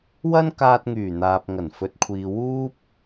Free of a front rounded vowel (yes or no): no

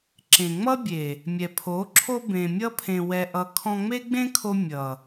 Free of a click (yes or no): no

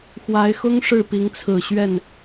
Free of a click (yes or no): yes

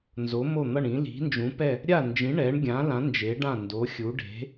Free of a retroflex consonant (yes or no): no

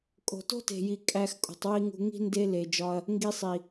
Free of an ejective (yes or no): no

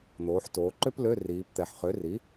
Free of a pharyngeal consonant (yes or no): no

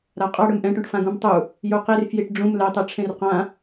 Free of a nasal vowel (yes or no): no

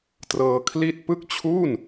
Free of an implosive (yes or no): yes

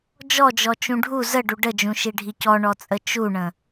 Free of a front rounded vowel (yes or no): yes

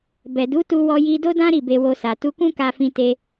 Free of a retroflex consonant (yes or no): yes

